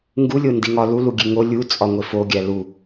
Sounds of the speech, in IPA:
ŋɡulʲo ndiŋɒ luluɡʲe ŋo lʲu t͡sʼɒŋʷefo ɡʲælu

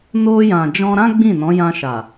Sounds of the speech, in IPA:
no˧jã˨d͡ʒɔ̃˧ɾã˦ ɡ͡bĩ˦˨ nɔ̃˨˦jã˧ʃa˨

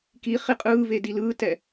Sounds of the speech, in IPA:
kiχi qʼɯːve dilɯːtɛ

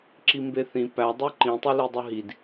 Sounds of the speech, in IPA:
ǁimbeθĩ pædˤu ǃĩtˤili dˤɯɦid

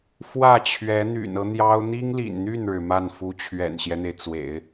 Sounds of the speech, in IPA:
fwä˥˩t͡ɕʰɥɛ˧˥ n̪y̰˨˩nɤ˦ n̪jɑ˥ʊ̯ n̪i˥ŋlḭ˨˩nn̪y˥˩nɻɻ̩˩ ma˥˩nfu˥ t͡ɕʰɥɛ̰˨˩nɕjɛ˦n̪e˩ɪ̯t͡swḛ˨˩˦ɪ̯

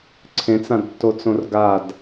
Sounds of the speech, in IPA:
ǀʰẽt͡sãdtːot͡sõr ɡad

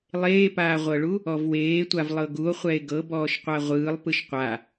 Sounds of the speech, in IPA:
lˠeːpaːʁʷɤɭu | ɔvweːtʷav lˠɤɡuo̯ χʷɛe̯ɡɤ bɔːʃqʷaʁʷɯːlˠ pɯʃqʷa

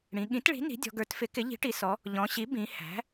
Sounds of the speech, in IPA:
ɽĩ˩˧ ɠĩ˩˥tɭi̤˩˥ ni̤˩˥dʲɔ̤˩˧ɡə˞˩˥tfɪ˩˥ kɪ˩˥ʎi̤˩˥ʈi˩˧ sɔ˩˧ | ʎɔ̃˩˧ɕi˩˥ bĩ˩˧ hæ̤˩˥

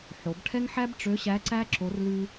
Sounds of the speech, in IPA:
ħo˩˧bʈʰɛ˦ŋħæ˦b ʈ͡ʂø˨˥ɕæ˨˥ǀæ˦ ǁo˨˥rlʉ˦

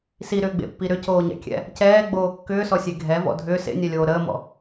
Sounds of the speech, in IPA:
siɾʏːɡ͡bḛpːi ɾʏcoːɲɛ̰kʲɛ̰ | cɛːɡ͡boː kːʏːsɔsʲe ɡʱɛvɔ̰ dʱʏː sḛnʲɛlʲoː ɾəːmɔ̰

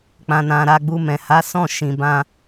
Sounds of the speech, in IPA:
k͡pã˨ nã˨ɾa˧ɡ͡bu˧mɛ̃˨ ha˨˦sɔ̃˦˨ʃĩ˨bã˧

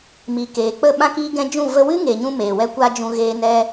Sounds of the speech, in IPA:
mi˨keː˨k͡pə˦˨ ɓã˧kiː˧ɡɛ̃˧ d͡ʒũ˦˨ və˧wɨ˦ŋeː˨ɲũ˧ meː˨wɛ˦kʷa˦d͡ʒũ˧ ɣeː˧nɛ˧

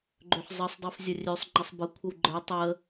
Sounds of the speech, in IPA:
ɡ͡ǃøħzˤəsˤdˤifzʲɐ rʲøsˤ ŋ͡ǃəsˤbəkʷʰəw ɡ͡ǃə˞ tˤə

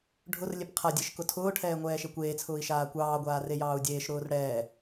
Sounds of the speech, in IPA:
ɖʱʊr lʲepqʰadʲeʃ kʊtʰʊːʈʰɛː ŋʷɛːʃekʷeːt͡sʰʊːi̯ ʃaːkʷɑːɡʷaː rejɑːu̯dʲeːʃɾʊːr ɽɛː

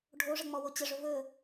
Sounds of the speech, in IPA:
ɖʱoʐə ŋ͡mɔwot͡ɕəʐɵ vɵ

